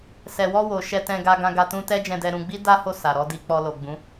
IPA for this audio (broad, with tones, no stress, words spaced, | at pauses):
sɛ˨wɔ˧wo˨ ʃɛ˧tɛ̃˧ɡa˧ɡã˧ ɡa˧tũ˧tɛ˦ d͡ʒɛ̃˧dɛ˧ɾũ˧ɡ͡bi˦ da˦ho˦˨ sa˨ɾɔ˧di˧ k͡pɔ˧lo˨ɡ͡bũ˨˦